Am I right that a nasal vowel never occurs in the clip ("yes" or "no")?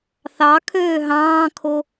no